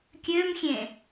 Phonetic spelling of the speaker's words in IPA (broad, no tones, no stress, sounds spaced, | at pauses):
kʲ ø m xʲ ẽ